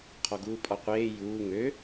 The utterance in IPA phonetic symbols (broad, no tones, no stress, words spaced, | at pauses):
qʰɔɡuːpʼɔqʷeː juː ŋø